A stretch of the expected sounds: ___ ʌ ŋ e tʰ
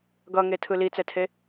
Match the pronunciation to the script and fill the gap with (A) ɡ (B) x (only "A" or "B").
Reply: A